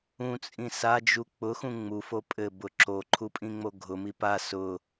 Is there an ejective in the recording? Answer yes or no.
yes